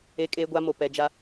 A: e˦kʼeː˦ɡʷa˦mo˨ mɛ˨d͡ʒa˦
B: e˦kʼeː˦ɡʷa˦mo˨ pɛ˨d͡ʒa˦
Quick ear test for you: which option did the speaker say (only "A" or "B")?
B